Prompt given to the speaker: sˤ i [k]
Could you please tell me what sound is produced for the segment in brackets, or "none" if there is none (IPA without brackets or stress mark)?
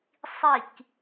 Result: k